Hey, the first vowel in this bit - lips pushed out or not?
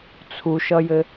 yes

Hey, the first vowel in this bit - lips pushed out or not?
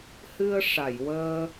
no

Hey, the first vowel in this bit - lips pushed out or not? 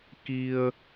no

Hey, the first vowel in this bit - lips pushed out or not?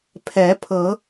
no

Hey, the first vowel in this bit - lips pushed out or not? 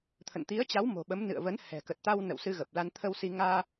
no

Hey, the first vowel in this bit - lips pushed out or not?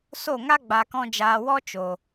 yes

